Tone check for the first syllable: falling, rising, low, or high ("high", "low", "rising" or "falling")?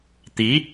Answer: rising